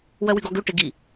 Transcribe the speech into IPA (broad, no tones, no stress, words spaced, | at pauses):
wœwyɡɔɡø ʈɪɡi